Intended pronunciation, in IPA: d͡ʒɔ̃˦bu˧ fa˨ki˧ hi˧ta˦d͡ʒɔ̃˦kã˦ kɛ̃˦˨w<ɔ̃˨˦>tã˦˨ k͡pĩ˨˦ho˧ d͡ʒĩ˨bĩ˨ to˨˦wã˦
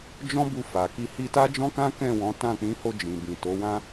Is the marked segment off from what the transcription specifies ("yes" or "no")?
no